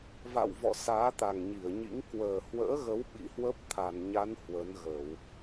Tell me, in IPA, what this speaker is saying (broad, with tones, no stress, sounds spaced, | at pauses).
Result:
v a̰˧˨ w v ɔ̰˧˨ s aː˨˦ t̪ a˨˩ ŋ ɲ i˧˩ ə̯ ɲ ḭ˧˥ ŋ k w əː˨˩ h w ə̰ː˧˥ ɣ ə˨˦ w ɓ ḭ˧˨ h w ə˦˥ p̚ t̪ʰ a˧˩ n ɲ a˨˦ n h w ə˨˦ n ɣ ə˧˩˨ w